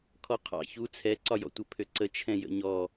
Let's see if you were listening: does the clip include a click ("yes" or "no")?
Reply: yes